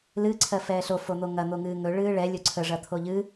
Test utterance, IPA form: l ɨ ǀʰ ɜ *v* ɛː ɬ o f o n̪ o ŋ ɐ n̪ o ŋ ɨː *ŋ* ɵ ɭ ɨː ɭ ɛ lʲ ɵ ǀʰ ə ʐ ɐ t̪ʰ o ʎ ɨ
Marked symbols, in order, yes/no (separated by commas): no, yes